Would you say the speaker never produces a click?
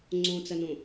no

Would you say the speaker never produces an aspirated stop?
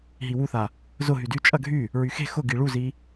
yes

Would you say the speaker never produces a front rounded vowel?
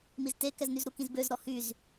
no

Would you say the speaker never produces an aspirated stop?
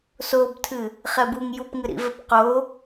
no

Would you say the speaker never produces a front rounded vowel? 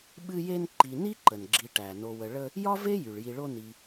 no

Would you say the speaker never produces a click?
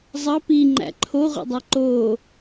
no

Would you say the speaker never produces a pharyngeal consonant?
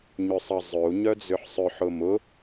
no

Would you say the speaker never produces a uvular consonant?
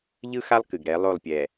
yes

